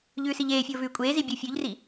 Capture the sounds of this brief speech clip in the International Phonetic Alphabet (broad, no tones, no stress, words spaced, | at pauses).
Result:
ʎʉːsiʎeːfʲoː vʉːkʷʼeːzi bʲofʲʉʎri